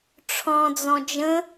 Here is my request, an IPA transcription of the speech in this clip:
ʈ͡ʂʰ ɔ̃ d͡z ɔ̃ d͡ʒ ə̃

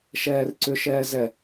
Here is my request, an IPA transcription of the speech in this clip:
ʃ ɛː r ǀ ʏ ʃ ɛː z ɛ

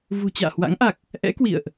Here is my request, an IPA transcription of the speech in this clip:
v ṳ˨˩ t͡ɕ a̰ː˧˨ h w a̰˧˥ ŋ ʔ a˨˩ k̚ | ʔ ɛ̰˧˥ k w ḭ˧˨ ə̯ ʔ

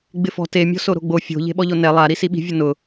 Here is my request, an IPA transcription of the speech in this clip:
ɡ͡b ɪ f ɔ̤ t e mʲ ɔ̤ s o ɾ o̤ ɡ͡b o fʲ o̤ ʎ e̤ ɓ ɔ ʎ o n ɛ lˠ a ɾ i s i ɓ i̤ vʲ ʊ n ʊ

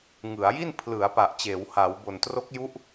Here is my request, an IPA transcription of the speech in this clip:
ŋ ɯ˩˦ a̯ j i˥˩ n pʰ l ɯ˩˦ a̯ p a˨˩ ʔ t͡ɕ eː˩˦ w h a˩˦ w b o˨˩ n t r o˦˥ k̚ j u˦˥ ʔ

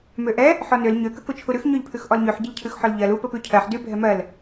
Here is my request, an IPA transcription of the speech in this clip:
m ø ʔ ɛ | ħ ɔ n ø l ɲ ø k ə k u t͡ʃʰ u ɾ ʉ x ɲ ø ʎ pʰ ʉ x ʔ ɔ l ɲ ʉ ħ ɟ ə ʎ cʰ ʉ x ħ ɔ l ʎ ɜ l u p ə p ʉ cʰ ɜ ħ d ʉ bʱ ɛ m ɜ l

